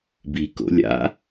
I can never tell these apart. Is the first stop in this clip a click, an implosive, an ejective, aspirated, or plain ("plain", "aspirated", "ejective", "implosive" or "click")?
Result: plain